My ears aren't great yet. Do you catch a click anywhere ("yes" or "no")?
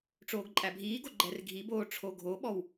yes